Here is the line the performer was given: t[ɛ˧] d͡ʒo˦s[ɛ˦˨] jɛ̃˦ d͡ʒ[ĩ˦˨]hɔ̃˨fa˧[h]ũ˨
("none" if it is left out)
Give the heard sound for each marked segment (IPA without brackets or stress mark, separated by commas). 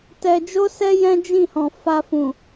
ɛ˧, ɛ˦, ĩ˦˨, f